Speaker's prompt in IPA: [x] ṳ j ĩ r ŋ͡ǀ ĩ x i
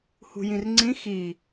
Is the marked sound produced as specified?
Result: no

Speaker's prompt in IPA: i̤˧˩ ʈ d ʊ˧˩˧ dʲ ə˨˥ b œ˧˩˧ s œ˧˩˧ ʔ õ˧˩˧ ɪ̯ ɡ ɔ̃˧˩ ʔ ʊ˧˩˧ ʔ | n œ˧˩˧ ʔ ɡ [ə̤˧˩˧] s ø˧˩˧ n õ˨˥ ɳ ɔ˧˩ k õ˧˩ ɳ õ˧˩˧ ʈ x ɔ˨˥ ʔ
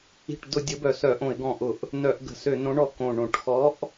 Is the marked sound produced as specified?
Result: yes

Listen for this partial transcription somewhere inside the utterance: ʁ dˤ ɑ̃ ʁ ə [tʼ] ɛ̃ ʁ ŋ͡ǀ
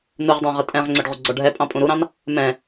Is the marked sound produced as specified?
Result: yes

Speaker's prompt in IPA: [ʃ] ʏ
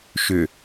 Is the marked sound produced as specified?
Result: yes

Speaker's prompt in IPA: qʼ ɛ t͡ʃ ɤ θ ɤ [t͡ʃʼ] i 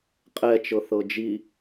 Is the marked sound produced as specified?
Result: no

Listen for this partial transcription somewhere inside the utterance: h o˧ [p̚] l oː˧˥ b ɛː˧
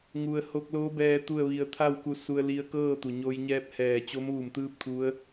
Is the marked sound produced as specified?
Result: no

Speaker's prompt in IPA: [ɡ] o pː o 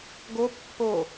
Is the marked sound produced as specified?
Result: yes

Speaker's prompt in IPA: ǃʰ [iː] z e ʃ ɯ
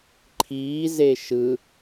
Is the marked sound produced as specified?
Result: yes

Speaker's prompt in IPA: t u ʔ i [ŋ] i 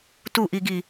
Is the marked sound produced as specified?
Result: no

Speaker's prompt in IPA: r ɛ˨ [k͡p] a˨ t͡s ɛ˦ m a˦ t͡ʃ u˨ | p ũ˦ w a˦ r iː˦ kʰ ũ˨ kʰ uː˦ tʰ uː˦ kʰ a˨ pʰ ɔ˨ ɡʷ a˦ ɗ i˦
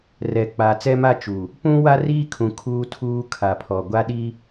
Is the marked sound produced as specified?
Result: yes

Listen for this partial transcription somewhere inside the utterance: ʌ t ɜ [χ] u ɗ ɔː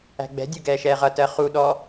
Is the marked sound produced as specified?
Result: yes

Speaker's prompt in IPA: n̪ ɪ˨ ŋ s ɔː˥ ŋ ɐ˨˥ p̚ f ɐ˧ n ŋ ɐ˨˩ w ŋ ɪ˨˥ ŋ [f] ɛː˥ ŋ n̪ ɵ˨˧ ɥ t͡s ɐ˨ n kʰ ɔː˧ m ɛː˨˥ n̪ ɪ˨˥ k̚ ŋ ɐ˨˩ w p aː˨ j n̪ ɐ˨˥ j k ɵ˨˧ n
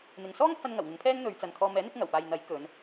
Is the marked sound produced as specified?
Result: no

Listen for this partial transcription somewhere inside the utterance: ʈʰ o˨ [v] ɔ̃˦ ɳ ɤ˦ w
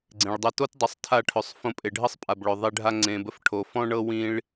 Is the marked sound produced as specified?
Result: no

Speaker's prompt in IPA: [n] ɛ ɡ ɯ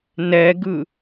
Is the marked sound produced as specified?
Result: yes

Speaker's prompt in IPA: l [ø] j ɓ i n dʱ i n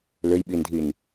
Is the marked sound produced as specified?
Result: yes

